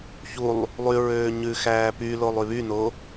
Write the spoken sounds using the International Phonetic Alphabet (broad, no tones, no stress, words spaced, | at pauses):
çulˠ | lˠy ɹøːɲʉxæː pylolˠ yβyno